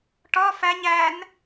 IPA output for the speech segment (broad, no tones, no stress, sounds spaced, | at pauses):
ʈ ɒ f æ ɲ æ n